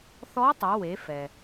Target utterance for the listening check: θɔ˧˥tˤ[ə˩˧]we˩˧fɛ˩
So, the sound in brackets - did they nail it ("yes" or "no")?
yes